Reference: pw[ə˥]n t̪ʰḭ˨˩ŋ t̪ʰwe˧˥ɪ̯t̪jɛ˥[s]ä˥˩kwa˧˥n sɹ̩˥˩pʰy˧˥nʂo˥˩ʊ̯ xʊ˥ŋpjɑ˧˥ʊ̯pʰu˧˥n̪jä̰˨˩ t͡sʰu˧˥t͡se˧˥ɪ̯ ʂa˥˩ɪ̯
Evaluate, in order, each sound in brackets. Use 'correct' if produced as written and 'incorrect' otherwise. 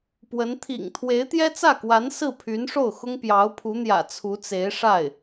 incorrect, incorrect

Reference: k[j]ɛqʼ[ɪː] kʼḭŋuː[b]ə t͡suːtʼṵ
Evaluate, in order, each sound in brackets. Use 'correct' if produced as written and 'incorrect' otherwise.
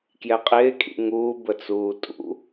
correct, correct, correct

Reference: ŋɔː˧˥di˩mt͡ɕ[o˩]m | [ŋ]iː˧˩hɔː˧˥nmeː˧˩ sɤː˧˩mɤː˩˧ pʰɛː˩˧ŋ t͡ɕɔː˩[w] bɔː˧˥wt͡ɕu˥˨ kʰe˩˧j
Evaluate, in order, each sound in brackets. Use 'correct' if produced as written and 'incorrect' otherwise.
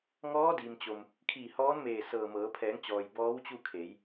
correct, incorrect, incorrect

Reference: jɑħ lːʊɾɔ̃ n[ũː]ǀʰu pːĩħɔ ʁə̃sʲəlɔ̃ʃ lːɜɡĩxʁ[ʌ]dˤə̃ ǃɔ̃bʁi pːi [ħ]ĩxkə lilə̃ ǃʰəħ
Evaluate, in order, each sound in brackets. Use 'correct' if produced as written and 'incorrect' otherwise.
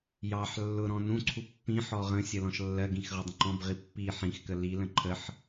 incorrect, correct, correct

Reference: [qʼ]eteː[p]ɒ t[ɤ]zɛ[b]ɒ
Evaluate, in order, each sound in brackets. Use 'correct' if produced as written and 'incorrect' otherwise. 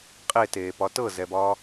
correct, correct, correct, correct

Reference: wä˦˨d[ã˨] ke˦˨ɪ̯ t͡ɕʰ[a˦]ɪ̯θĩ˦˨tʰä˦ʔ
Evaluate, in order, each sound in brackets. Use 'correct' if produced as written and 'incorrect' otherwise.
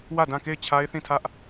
incorrect, correct

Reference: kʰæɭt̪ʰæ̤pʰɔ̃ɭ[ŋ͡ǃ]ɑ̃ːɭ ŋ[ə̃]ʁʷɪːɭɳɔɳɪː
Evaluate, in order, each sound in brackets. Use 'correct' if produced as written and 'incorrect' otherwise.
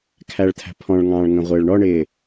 incorrect, correct

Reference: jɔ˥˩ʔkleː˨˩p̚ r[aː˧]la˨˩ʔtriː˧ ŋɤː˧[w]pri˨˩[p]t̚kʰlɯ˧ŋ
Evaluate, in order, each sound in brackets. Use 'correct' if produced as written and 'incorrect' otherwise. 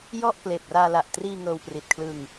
correct, correct, incorrect

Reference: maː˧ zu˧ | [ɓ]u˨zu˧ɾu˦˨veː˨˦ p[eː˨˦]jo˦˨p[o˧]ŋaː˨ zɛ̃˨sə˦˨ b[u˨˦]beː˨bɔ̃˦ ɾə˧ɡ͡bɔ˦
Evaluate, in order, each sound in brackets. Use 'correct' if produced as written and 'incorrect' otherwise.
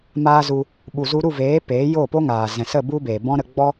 correct, correct, incorrect, incorrect

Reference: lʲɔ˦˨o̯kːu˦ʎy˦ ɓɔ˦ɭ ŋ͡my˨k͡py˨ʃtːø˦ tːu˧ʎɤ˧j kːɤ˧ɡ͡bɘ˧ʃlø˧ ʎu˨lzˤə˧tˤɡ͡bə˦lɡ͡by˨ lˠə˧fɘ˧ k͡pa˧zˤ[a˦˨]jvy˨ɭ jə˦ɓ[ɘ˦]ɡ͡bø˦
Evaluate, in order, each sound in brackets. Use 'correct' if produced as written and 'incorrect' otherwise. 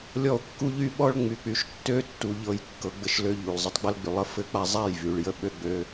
correct, incorrect

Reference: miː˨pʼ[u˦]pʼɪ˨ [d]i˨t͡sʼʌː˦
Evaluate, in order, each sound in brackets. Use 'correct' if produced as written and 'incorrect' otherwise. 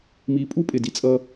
correct, correct

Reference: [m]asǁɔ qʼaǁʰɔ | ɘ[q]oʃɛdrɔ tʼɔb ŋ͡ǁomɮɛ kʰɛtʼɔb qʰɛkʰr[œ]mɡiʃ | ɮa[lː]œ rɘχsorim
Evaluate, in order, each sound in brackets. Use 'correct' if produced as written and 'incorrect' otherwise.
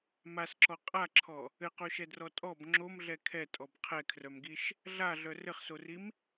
correct, correct, correct, incorrect

